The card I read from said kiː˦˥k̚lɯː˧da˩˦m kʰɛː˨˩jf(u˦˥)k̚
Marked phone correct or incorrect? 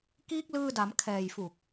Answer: incorrect